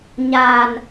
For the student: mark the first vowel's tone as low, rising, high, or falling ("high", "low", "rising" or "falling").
low